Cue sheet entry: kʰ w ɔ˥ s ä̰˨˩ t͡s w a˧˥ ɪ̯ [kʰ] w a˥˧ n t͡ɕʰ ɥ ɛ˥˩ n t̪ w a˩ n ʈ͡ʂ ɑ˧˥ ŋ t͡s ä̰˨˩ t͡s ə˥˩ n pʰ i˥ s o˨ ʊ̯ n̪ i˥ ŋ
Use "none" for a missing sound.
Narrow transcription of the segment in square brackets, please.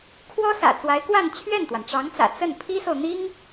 k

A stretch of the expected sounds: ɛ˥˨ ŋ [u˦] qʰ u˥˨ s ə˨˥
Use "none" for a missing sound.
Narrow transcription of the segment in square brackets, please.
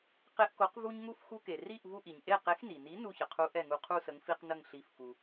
u˦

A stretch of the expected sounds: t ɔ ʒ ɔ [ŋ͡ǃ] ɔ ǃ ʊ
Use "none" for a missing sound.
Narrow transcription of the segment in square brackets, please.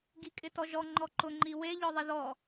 ŋ͡ǃ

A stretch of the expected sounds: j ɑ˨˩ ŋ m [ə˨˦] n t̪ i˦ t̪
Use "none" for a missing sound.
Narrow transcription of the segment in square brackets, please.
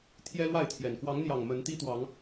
ə˨˦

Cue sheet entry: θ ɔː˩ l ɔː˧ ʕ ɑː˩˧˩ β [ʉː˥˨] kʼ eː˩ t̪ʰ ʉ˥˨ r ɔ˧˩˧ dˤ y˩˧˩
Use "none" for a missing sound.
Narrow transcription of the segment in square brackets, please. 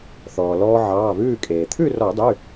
ʉː˥˨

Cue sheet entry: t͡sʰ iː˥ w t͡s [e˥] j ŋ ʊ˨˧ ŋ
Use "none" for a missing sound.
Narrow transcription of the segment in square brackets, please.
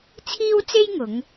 e˥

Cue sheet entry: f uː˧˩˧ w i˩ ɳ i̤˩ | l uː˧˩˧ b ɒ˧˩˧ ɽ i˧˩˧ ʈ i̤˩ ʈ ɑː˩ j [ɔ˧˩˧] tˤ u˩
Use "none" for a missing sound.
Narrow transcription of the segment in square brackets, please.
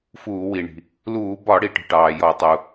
ɔ˧˩˧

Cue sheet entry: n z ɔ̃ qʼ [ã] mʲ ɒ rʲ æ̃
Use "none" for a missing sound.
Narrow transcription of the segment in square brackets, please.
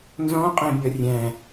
æ̃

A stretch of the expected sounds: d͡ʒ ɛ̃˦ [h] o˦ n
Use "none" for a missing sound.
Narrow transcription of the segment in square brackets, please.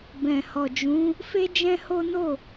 h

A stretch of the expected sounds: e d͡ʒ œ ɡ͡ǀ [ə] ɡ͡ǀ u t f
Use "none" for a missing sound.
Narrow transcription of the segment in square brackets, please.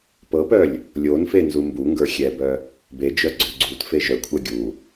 œ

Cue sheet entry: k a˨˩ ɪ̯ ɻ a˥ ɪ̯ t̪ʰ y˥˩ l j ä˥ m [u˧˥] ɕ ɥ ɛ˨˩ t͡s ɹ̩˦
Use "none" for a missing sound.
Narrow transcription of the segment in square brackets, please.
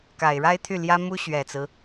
u˥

